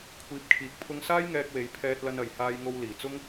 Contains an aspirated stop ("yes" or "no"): yes